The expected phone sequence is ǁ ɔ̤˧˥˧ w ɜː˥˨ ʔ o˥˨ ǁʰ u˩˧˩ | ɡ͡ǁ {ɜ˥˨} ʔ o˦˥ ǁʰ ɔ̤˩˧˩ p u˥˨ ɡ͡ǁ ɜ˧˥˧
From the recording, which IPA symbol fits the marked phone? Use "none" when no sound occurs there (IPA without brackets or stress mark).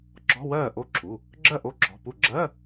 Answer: ɜ˥˨